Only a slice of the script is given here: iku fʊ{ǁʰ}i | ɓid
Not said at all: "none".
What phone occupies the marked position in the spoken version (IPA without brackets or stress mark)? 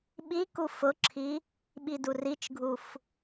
ǁʰ